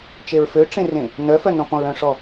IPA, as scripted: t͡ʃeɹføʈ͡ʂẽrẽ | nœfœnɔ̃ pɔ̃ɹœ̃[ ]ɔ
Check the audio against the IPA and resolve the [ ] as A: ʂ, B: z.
A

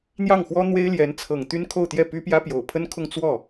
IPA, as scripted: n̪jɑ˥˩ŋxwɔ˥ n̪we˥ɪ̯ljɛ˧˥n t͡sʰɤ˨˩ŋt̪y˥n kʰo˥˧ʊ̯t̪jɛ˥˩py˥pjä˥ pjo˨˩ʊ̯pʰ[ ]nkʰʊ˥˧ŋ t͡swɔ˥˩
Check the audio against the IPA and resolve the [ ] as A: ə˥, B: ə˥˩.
A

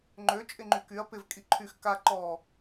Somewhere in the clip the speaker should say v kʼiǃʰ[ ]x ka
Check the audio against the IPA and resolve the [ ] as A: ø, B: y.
B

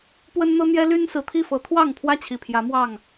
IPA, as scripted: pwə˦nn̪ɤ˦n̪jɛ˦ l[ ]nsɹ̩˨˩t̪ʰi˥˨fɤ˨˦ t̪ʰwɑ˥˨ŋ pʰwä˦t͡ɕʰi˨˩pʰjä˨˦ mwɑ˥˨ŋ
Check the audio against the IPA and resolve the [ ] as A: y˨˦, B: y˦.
B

